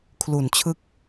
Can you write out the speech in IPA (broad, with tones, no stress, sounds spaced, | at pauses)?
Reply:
kʰ l u˩˦ n t͡ɕʰ ɯ˦˥ k̚